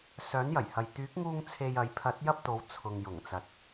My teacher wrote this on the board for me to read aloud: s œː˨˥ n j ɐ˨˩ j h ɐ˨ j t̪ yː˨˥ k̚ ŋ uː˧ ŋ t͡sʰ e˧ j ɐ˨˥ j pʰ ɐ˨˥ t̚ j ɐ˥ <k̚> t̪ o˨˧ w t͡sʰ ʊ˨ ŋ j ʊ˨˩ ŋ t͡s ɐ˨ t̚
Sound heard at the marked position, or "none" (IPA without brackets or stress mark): p̚